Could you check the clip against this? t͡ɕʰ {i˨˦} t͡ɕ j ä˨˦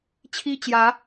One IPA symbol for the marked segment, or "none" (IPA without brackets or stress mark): i˦